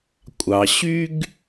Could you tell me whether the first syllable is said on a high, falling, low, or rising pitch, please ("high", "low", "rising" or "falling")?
low